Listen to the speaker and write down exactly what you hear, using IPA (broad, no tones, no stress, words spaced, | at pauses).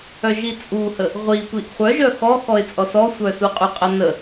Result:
œʒit͡sʼuhə | ʁʷi tʷiʔχʷœ ʒœxɔxɔɪ̯t͡sʼɔs ɔsʷœsuqʼy qʼənə